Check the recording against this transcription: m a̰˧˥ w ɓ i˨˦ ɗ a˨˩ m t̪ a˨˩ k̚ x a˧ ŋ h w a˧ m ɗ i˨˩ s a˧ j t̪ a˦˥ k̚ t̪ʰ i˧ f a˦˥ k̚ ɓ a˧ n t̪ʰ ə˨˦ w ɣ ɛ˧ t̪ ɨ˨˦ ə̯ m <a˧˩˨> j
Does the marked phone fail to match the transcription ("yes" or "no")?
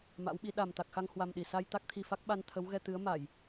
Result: no